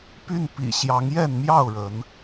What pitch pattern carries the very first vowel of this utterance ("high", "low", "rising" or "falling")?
falling